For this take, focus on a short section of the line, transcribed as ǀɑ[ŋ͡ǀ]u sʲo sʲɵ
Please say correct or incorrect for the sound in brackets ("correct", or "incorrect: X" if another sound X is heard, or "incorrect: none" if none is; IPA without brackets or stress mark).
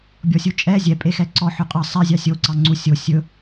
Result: correct